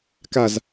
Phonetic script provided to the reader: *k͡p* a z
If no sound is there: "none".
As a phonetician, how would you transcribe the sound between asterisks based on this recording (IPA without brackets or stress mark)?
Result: k